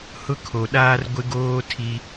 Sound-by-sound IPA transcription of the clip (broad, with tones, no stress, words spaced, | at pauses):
hʊ˦kʰo˨ɗaː˦r ɡʷɪ˦ɡoː˦ tʰi˦